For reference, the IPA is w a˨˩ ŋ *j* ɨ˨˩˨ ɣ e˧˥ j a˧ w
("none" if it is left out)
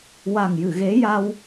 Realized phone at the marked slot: j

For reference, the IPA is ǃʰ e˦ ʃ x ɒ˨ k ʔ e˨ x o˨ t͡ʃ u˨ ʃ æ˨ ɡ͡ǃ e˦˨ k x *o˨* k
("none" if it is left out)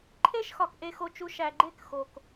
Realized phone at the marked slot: o˨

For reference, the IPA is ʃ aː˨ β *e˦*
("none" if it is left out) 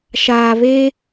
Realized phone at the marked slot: e˦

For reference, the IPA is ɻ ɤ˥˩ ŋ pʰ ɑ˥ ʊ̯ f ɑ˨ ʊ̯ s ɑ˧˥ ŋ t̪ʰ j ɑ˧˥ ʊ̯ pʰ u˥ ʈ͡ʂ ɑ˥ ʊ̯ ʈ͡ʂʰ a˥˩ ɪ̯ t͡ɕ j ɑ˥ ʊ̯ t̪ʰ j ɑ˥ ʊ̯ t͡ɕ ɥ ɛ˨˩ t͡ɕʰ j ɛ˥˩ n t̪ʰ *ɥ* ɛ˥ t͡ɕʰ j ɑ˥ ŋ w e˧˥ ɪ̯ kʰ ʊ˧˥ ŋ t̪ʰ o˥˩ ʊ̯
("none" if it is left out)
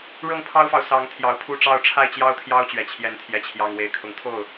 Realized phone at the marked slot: j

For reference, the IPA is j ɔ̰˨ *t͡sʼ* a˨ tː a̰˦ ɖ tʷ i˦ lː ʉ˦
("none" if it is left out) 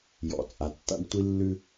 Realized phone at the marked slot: t͡sʼ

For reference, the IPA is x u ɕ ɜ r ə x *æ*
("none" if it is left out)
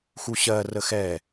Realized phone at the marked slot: ɛ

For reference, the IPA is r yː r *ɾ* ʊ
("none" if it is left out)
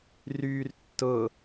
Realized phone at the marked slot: tː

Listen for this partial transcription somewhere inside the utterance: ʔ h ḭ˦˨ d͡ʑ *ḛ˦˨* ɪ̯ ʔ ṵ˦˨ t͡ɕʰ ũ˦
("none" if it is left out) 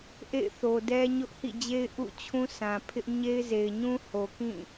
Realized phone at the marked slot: e˦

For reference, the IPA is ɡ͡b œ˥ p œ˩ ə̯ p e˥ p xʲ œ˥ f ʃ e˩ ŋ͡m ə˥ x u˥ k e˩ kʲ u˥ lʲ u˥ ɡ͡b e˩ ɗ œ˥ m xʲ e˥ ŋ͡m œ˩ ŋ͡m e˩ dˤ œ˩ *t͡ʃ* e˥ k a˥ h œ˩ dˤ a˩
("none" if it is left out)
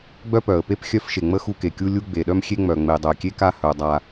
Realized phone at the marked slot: kʲ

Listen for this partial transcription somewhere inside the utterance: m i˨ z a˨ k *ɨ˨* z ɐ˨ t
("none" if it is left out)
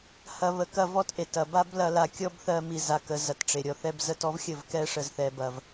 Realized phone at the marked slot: ə˨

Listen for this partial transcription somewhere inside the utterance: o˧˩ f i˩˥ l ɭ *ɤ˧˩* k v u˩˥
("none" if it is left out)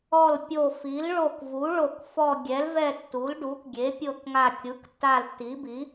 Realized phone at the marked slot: o˧˩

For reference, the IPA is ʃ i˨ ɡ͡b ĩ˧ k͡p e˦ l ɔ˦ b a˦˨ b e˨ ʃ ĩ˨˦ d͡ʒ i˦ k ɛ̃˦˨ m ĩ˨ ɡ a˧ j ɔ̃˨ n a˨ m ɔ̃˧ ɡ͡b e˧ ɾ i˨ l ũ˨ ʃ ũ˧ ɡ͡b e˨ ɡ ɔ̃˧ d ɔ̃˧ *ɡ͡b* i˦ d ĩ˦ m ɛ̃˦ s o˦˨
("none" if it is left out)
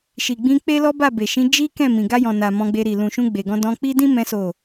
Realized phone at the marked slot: k͡p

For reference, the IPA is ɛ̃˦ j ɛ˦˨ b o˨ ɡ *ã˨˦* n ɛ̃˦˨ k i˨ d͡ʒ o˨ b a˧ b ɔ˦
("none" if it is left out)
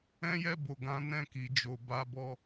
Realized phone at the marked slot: ã˨˦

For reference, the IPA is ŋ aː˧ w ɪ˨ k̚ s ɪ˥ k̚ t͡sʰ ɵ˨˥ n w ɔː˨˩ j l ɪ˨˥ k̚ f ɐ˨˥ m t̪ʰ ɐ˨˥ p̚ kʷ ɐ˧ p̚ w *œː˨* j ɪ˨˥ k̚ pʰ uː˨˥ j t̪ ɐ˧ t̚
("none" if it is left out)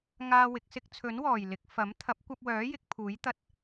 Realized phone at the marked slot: œː˨˥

